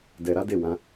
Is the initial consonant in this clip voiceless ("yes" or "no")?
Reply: no